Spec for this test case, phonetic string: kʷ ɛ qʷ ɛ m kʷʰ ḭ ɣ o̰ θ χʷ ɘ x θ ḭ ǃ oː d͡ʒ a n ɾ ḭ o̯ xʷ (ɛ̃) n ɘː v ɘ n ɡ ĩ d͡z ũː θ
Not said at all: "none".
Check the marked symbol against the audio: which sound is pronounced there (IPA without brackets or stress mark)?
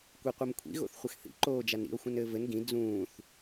ɛ̃